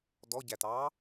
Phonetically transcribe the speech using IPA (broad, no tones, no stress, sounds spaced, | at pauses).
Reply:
d ɔ ɟ æ t ɑː